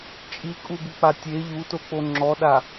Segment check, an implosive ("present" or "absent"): present